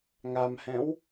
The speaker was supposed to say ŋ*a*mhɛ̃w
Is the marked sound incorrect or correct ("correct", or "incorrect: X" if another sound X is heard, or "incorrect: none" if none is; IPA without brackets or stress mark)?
correct